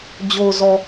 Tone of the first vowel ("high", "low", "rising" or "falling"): low